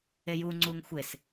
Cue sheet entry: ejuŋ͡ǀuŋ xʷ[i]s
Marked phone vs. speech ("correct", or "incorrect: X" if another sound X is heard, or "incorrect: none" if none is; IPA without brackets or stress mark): incorrect: e